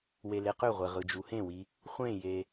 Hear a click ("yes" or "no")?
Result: no